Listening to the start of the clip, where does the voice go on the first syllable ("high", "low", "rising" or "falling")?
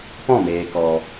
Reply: falling